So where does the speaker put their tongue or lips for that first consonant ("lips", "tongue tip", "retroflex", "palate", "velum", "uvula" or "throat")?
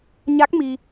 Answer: palate